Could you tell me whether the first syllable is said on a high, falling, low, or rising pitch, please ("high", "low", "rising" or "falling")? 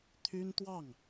high